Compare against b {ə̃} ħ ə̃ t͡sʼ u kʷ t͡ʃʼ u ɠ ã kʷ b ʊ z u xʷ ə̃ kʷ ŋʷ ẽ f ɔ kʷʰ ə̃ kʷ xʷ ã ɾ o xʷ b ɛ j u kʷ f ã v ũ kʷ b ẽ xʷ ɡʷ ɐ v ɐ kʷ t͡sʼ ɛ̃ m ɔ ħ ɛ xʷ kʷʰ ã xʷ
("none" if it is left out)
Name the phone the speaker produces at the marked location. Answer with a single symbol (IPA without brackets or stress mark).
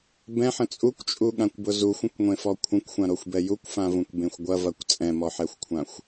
ɛ̃